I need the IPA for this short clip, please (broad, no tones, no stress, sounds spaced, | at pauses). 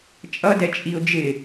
t͡ʃʼ ʌ d ɛ t͡ʃʼ i ʊ̯ d͡ʒ ɪ